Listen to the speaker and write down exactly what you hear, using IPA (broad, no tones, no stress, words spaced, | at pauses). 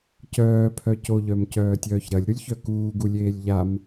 cœːpʰœ coʎœmcœːtʲœːç ɾɐlʲɾulʲçœ kuːɡulʲeːlʲ ʎam